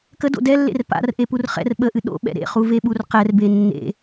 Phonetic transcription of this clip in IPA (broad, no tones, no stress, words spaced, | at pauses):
kədo̰ dɛlːḛr pa̰r ʔepurχɛ̰r ɓəʔɨ ɗo̰ɓɛ̰ ɾḛχuveɓur qɛrbe nːḛ